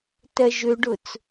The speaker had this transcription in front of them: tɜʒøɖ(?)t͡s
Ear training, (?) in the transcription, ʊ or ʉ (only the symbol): ʊ